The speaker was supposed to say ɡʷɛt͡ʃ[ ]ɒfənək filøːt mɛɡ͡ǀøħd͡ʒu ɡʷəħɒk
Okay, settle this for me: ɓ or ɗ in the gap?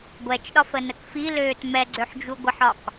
ɗ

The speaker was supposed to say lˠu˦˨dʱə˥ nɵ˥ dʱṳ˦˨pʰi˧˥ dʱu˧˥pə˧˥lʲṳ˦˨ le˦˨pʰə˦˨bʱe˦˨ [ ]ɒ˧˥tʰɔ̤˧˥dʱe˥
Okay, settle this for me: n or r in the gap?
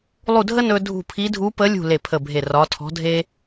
r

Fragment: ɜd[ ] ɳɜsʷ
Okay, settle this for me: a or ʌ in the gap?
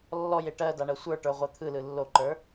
a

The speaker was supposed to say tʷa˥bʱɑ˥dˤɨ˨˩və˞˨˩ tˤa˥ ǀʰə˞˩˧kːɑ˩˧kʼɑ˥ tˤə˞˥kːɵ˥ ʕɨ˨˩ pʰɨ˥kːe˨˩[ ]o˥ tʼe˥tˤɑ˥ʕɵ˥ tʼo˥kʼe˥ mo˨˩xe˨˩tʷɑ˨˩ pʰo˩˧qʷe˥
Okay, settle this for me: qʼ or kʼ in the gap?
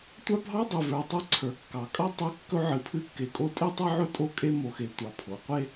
kʼ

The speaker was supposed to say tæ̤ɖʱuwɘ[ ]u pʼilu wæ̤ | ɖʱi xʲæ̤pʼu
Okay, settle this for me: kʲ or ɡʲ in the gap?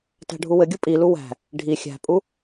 ɡʲ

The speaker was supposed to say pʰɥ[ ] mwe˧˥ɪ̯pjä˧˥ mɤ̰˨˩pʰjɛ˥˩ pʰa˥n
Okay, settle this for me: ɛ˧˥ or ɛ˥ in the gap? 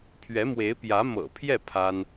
ɛ˧˥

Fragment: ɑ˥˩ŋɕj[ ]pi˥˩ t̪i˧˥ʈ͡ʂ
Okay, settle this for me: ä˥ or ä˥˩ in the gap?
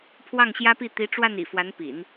ä˥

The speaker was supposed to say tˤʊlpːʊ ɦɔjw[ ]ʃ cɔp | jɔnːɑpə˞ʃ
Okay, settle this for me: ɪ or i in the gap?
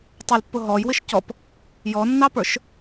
ɪ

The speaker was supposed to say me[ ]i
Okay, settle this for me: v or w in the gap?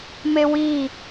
w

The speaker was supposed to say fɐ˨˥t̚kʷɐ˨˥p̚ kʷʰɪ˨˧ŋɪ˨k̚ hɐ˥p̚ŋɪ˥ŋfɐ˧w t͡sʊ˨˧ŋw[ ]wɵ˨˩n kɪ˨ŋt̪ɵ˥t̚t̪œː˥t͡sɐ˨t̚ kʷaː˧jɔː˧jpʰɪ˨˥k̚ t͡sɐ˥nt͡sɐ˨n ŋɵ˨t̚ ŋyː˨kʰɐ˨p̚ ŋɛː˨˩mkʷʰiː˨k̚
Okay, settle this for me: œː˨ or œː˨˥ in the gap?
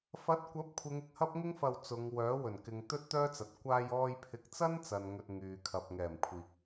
œː˨˥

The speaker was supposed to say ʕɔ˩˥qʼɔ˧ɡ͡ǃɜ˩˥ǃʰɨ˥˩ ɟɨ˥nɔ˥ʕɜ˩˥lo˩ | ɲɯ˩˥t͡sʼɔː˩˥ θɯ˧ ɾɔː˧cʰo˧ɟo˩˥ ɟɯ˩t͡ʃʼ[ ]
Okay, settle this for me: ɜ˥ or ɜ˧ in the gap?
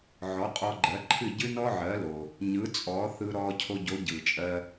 ɜ˧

